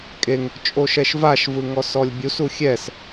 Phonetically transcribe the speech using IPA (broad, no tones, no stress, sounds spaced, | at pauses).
kʼ e ŋ | t͡ʃʼ o ʃ ɛ ʃ v a ʃ v ɯ ŋ ɔ s ɔ lʲ bʲ u s u xʲ ɛ s